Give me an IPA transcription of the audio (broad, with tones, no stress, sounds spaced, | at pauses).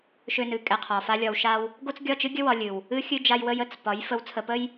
ʃ ø˧ n ɨ˨ kʼ ɛ˧ qʰ ɒ˨ f a˦ lʲ ɒ˧ w ʃ a˧ w | ɡ o˦ t͡s ɡʲ ɒ˦˨ t͡ʃ ɨ˦ ɡʲ ə˦ w ɒ˧ lʲ ɨ˨ w | ɨ˦ xʲ ɨ˦ d͡ʒ a˦ j w ə˦ j ə˨ t͡s p ɒ˨˦ j f ə˨˦ w t͡sʰ ə˨ p ə˦ j